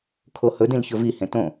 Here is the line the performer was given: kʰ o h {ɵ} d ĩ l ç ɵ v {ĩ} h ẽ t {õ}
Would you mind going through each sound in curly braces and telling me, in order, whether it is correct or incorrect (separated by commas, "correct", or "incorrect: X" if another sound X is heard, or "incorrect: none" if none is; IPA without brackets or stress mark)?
correct, incorrect: i, correct